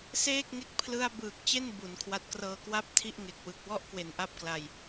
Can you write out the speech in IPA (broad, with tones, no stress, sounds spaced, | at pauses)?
s eː˥˩ k̚ ŋ e˦˥ k̚ pʰ l ɯ˧ a̯ b ɯː˨˩ k̚ t͡ɕ e˥˩ n b u˩˦ n kʰ w a˦˥ t̚ k r ɤː˧ k w a˥˩ p̚ tʰ i˥˩ ʔ ŋ e˨˩ k̚ w ɯ˨˩ k̚ w ɔ˥˩ ʔ k w e˨˩ n ʔ a˥˩ p̚ k l a˧ j